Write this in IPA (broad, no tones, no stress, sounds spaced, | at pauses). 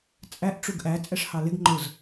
t͡sʼ æ ʔ ʈ͡ʂ u ɡ ʔ æ t͡sʼ ɛ ʂ h ɑ l ɪ ɡ ŋ͡ǃ ʊ z